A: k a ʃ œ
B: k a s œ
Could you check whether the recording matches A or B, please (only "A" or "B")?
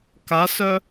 B